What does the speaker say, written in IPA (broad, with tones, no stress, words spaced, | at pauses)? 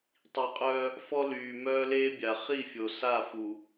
tˤi˨qʼœː˦ | fɔ˦ lyː˨mœː˦ leː˦bʲa˨ χi˦˨fʲo˨ sa˦˨fu˨